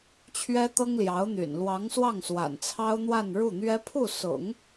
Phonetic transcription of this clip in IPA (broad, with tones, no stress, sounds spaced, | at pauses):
t͡ɕʰ ɥ ɛ˥ t̪ ɤ˥ ŋ l j ɑ˧˥ ʊ̯ n̪ y̰˨˩ n l w ɑ˧˥ ŋ s w ɑ˥˩ ŋ s w a̰˨˩ n t͡sʰ ɑ˥ ʊ̯ n̪ w a˥˧ n ɻ u˥˩ n̪ ɥ ɛ˥ pʰ u˥˩ s ʊ̰˨˩˦ ŋ